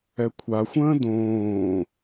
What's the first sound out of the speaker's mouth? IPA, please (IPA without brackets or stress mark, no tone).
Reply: ɛ